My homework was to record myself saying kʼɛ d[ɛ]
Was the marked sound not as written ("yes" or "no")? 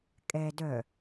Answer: yes